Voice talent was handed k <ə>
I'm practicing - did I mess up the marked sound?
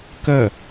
no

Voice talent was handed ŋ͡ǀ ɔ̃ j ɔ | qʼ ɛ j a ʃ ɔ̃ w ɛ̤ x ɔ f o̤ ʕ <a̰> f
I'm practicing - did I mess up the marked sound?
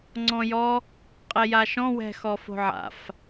no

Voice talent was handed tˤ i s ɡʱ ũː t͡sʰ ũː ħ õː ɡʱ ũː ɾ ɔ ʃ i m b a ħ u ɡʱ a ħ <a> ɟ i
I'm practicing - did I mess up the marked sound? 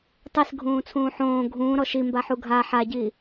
no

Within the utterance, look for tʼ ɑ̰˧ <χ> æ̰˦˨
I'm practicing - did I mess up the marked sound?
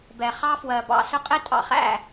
no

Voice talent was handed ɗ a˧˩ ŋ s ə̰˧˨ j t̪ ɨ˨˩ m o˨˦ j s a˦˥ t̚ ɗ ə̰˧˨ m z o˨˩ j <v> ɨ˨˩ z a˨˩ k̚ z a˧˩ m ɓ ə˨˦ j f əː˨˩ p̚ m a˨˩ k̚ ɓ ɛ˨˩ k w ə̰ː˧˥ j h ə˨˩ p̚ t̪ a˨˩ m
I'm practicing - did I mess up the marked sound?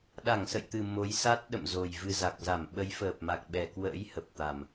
no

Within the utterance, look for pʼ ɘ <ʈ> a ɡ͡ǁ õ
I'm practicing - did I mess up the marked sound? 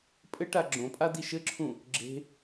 no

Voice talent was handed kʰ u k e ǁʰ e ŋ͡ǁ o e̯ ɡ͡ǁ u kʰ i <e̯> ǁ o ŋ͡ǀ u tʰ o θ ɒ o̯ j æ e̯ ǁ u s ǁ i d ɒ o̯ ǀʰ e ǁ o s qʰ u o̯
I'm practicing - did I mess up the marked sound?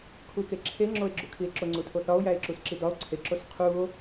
no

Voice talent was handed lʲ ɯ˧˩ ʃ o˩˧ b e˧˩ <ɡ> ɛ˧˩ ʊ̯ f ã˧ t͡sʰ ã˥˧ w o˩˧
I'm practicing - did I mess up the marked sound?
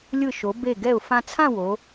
no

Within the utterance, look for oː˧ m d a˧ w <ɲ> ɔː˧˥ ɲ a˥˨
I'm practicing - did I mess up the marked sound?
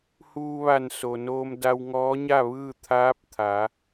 yes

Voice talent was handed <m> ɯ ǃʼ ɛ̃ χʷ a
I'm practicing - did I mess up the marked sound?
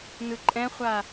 yes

